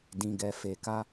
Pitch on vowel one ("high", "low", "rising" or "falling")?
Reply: low